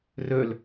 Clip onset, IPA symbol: r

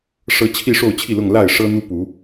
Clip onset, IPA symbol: ʂ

